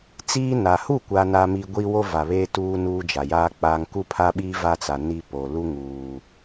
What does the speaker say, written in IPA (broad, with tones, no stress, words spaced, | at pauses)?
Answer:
t͡siː˦na˨ hu˦˨kʷa˨na˨mi˨ ɡʷi˦wo˦va˨βeː˦ tuː˦ nuː˦d͡ʒa˨jaː˦ k͡paː˨ŋku˦pʰa˦ɓiː˦ va˦t͡sa˨ ni˦po˨ lu˦ŋuː˨